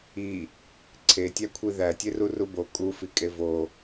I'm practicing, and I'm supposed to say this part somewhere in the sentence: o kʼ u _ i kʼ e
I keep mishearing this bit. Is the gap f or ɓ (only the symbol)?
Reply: f